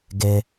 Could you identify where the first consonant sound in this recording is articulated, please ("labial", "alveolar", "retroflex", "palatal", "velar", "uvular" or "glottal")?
velar